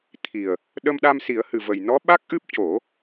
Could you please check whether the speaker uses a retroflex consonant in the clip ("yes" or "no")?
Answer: no